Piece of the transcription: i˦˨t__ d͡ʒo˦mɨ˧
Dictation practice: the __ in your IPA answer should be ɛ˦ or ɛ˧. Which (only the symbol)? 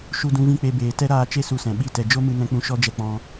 ɛ˧